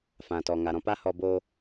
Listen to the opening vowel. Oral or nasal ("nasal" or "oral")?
nasal